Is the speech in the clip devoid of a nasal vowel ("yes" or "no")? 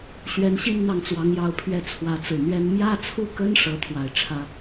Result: yes